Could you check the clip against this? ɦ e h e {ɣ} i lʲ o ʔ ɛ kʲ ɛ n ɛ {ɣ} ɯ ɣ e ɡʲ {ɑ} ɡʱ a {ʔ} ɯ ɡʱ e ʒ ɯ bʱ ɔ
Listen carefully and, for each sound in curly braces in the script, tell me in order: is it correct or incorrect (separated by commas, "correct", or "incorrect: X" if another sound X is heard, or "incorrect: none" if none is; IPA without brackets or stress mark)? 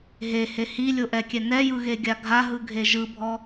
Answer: incorrect: h, incorrect: j, incorrect: a, incorrect: ɦ